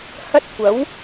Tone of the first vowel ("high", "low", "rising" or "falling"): high